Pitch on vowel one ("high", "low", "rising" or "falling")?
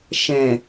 low